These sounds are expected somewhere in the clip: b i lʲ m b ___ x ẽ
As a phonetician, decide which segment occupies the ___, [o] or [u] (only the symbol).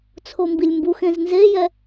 u